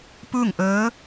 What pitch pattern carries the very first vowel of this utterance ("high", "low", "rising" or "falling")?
falling